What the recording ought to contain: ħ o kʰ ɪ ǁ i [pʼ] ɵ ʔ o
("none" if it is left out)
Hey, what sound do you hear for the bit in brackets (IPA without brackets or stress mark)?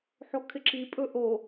pʼ